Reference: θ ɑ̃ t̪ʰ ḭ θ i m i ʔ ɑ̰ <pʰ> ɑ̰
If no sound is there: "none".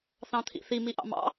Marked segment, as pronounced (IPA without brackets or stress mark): m